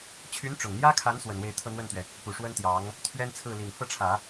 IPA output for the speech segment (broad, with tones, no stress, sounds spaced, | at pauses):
t͡ɕʰ y˧˥ n ʈ͡ʂ ʊ˨˩ ŋ n̪ j ä˥ kʰ a˧˥ n s w ə˨˩ n w e˥˧ ɪ̯ t̪ʰ ɤ˥˧ n̪ w ə˥˩ n t̪ ɥ ɛ˩ | p u˨˩ ʂ w ə˥ n t̪ j ɑ˧˥ ŋ | t̪ʰ ɥ ɛ˥ n t͡sʰ ɹ̩˥˩ l i˨˩ ŋ f ɤ˥˩ ʈ͡ʂʰ ä˨˩˦